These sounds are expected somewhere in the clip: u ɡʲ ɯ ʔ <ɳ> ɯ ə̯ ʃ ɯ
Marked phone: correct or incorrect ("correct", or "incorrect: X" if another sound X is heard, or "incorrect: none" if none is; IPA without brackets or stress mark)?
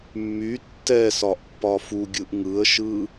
incorrect: ŋ